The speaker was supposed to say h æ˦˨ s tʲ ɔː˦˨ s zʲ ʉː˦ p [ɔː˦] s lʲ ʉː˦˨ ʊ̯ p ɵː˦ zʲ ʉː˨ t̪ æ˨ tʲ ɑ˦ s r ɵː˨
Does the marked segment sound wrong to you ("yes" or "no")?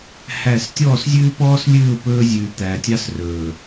no